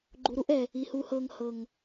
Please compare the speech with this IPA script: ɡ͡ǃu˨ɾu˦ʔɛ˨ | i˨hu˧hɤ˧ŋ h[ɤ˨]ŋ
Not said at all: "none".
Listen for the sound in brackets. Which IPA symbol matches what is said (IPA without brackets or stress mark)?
ɤ˨